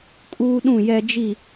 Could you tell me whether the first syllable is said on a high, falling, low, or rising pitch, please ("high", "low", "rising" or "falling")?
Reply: high